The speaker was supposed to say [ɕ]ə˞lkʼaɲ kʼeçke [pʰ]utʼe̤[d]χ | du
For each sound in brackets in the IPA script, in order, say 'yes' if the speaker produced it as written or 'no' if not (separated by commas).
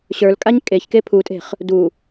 yes, yes, no